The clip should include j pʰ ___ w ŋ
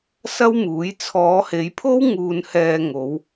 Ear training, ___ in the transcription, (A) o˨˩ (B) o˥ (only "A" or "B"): B